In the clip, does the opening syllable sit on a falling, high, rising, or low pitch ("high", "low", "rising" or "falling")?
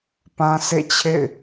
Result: high